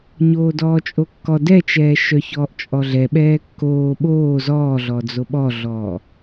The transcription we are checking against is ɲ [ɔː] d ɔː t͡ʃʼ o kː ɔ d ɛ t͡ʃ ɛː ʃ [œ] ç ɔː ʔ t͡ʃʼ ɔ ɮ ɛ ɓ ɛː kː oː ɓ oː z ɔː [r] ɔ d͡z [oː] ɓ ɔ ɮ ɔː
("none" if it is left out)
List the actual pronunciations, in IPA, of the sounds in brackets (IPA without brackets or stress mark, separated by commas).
oː, œ, ɮ, o